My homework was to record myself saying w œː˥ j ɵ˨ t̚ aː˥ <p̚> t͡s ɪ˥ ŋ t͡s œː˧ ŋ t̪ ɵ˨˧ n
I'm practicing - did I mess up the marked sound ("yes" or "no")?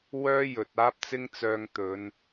no